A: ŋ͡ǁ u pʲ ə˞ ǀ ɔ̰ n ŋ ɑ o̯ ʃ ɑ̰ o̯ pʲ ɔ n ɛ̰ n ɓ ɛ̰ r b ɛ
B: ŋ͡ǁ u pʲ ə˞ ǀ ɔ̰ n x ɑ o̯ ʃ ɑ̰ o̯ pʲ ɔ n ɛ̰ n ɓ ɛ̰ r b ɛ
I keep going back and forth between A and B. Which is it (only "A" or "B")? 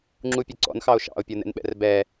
B